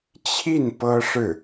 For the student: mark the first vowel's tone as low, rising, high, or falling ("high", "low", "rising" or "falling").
falling